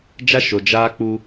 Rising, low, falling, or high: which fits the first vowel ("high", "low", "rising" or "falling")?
high